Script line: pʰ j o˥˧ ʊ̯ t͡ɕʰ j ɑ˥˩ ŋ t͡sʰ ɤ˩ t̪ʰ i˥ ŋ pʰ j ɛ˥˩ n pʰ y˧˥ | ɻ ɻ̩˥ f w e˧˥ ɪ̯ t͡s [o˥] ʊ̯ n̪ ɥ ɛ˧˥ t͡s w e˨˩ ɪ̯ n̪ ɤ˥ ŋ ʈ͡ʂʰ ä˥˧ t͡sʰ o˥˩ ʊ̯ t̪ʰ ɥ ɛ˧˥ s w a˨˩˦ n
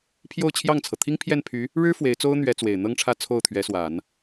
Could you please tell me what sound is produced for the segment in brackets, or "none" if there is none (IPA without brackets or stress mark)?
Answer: o˥